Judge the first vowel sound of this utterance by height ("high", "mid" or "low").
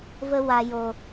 mid